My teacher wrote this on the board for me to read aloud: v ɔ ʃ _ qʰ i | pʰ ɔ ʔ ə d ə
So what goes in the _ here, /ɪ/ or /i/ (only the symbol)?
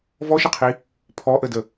ɪ